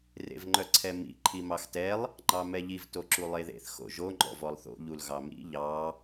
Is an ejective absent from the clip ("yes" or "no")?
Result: yes